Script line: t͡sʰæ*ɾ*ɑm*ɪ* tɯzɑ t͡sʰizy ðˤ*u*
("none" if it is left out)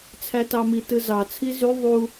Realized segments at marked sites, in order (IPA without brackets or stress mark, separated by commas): t, i, u